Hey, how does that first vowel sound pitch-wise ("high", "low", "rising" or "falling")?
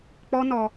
high